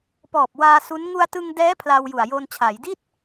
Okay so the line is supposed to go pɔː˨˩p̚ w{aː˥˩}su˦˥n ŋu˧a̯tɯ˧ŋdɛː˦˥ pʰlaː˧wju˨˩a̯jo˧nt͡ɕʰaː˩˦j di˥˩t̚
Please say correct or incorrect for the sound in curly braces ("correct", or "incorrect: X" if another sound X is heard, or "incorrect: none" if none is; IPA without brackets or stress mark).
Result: incorrect: aː˧